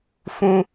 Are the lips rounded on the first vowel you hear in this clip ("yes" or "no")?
yes